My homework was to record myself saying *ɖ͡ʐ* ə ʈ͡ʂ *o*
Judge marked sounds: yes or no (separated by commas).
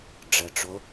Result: yes, yes